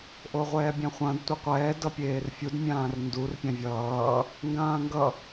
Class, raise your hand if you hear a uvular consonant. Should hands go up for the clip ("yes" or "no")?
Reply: yes